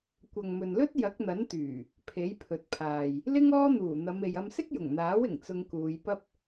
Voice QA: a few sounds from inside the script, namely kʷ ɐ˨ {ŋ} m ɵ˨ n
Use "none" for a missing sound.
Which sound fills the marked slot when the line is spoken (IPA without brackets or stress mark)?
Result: ŋ